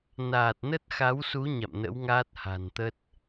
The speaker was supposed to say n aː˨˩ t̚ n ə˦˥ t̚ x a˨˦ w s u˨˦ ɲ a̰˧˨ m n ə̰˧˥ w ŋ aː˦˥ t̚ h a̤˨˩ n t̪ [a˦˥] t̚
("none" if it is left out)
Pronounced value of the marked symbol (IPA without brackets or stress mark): ə˦˥